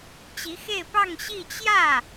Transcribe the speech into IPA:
t͡ɕ i˧˥ x e˥˧ ɪ̯ p ɑ˥˧ ŋ ɕ i˥˧ t͡ɕ j ä˥˩

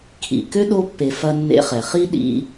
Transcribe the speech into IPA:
kʰ ḭ˨ k ø˥ ɗ o˦ pː e˨ f ɐ˦ nː ḛ˦ χ ɛ˩ χ i˥ ɗ ḭ˦

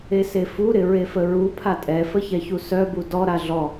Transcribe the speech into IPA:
e s e f u ɾ ɪ ɹ e f ə ɹ u pʰ a tʼ ɛ f ə ç ɛ ç u s œ b u d ɔ ɾ a ɮ ɔ

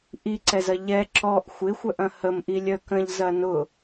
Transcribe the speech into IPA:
ʔ i ǀ ɛ z ɐ ʎ ɛ ǁ ɔ ʔ xʷ ɪ xʷ œ ʔ ɐ̃ h ə m ʔ i lʲ œ k ə̃ ʎ z ɐ n ʊ

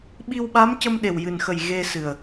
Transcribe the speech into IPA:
ɓ i˧ w ɓ a˧˥ m c ə˧ m ɗ e˨˩ w j ɨ˨˩ n x ə˨˩ j ɣ e˧ s ɨ˨˩ ə̯

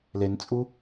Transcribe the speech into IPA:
l e n t͡sʼ u

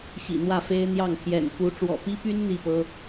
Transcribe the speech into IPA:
ɕ ḭ˨˩ n̪ w ä˥˩ f e˥ ɪ̯ n̪ j ɑ˥˩ ŋ pʰ j ɛ̰˨˩ n x u˧˥ ʈ͡ʂ w ɔ̰˨˩ p i˥ p y˥ n n̪ i˥˩ p ɤ˥

